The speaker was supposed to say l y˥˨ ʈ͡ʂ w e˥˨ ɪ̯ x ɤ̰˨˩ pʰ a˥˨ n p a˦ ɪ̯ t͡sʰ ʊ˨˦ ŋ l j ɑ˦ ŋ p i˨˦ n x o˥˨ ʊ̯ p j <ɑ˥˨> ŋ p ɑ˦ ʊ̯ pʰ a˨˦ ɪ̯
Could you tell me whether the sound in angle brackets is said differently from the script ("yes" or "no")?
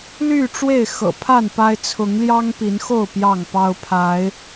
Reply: no